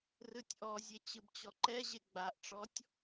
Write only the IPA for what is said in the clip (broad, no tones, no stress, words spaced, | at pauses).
rɯtʲʔɔzʲe t͡ɕɯbt͡ɕɔǃɛʑe ɡ͡baʔʈ͡ʂɔtʲ